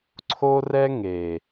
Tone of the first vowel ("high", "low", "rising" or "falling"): high